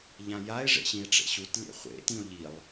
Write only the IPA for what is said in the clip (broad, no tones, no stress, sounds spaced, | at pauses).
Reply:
ʎ ã j a e̯ ʐ ḛ ɕ ĩ e̯ ʈ͡ʂ ḛ ɕ u t lʲ ɛ̰ χʷ ḛ t ĩ o̯ ʎ i lˠ